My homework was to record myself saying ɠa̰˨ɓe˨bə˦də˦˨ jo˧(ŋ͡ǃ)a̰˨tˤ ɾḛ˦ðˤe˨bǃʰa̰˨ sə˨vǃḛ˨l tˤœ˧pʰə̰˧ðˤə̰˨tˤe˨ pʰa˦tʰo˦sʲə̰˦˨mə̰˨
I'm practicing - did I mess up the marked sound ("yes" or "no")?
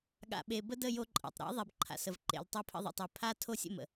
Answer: yes